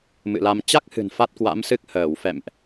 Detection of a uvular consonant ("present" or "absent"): absent